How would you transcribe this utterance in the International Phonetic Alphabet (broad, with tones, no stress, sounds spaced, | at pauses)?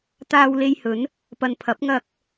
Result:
t̪ aː˧ w l e˧ j h ɵ˨˥ n | p ɐ˨ n pʰ ɐ˨˥ p̚ ŋ ɐ˧ k̚